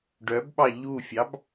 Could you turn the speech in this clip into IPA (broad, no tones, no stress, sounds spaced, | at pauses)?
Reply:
ɖ œ b ɓ ɑ ʎ u fʲ ɑ b